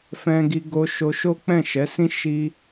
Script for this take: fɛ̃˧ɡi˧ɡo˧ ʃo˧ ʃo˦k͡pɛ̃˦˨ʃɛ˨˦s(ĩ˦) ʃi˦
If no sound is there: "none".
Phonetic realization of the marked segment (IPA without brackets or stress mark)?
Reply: ĩ˦